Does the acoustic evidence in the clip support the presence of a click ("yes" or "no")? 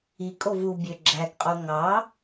yes